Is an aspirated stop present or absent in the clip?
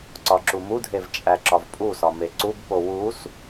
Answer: absent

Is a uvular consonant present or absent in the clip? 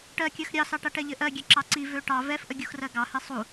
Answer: absent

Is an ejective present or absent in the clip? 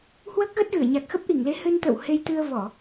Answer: absent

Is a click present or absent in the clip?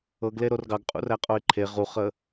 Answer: present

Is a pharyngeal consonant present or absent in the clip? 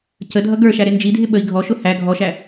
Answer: absent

